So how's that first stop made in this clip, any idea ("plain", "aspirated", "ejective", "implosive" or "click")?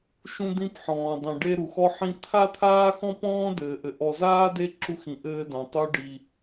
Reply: plain